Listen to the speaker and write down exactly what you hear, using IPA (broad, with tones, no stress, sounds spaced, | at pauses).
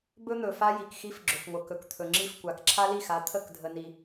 b ɵ˦ n̪ ɵ˨ f a˦ j i˨ k x i˦ f ɡ͡ǁ ɵ˨ f ŋʷ ə˨ k ɵ˨ k t̪ʰ ɵ˨ ŋ͡ǁ i˦˨ f kʷ a˨ k ǁʰ a˦ l i˦˨ x a˨˦ t̪ʰ ə˦˨ k dʱ ə˨ n i˨